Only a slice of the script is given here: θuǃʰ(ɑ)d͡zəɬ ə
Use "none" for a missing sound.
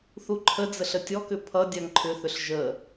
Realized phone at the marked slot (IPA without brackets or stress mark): ə